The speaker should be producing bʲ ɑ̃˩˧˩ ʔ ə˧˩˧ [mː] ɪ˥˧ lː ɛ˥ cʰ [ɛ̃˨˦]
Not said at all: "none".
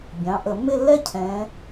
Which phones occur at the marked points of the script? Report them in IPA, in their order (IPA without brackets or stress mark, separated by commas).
mː, ɛ̃˨˦